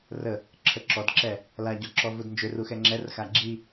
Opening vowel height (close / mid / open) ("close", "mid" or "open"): mid